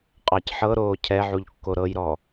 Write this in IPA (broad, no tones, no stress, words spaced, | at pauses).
qʼɑcħɤɾoː cʰɛʕuʎ kːoɾɤjɾɔ